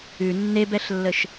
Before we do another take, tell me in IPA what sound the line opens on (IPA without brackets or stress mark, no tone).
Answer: ʉ